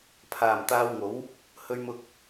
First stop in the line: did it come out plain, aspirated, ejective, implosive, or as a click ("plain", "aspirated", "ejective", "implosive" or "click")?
aspirated